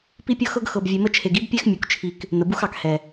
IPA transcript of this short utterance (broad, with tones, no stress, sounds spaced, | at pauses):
p i˦ pʲ ɤ˦ x ɤ˦ ɡ x ɤ˨ b vʲ e˨ m ə˧ t͡ʃʰ e˨ ɡ i˦ b pʲ ɛ˦ x mʲ u˨ k t͡ʃʰ i˨ k | n ə˨ b u˦ x ɑ˨ k h ɛ˨